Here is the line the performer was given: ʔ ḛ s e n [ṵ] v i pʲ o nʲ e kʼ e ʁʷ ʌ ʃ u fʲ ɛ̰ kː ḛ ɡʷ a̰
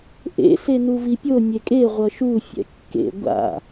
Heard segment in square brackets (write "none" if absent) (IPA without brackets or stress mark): u